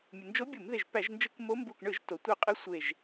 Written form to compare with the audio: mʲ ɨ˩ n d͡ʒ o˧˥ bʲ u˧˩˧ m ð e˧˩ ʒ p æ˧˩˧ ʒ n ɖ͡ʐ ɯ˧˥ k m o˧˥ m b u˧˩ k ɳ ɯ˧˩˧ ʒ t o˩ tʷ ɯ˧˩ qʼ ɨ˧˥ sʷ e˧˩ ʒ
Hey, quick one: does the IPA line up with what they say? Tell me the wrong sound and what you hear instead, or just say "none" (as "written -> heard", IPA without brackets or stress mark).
ɖ͡ʐ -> d͡ʒ